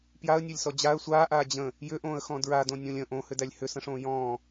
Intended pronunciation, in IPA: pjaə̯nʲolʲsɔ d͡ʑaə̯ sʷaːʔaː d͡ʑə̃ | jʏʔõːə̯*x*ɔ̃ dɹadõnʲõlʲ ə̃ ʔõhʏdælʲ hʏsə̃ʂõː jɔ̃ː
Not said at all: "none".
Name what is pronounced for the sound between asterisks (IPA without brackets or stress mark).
x